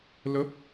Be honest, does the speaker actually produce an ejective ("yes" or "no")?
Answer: no